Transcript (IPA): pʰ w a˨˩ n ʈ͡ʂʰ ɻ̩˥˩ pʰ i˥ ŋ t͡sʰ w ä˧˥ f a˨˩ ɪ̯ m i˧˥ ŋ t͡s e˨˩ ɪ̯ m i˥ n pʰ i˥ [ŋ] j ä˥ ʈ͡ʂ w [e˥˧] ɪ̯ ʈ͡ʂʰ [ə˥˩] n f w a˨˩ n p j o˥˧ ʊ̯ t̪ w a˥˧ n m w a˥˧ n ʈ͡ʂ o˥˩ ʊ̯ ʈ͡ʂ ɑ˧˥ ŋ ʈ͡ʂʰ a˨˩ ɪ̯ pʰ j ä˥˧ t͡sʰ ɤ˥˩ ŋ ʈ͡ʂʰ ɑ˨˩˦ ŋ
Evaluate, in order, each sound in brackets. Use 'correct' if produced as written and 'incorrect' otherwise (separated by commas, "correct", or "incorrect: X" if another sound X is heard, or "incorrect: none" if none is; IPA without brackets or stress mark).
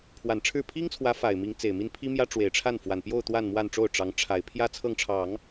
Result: incorrect: m, incorrect: e˨˩, incorrect: a˥˩